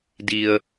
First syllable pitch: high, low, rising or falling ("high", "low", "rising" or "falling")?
low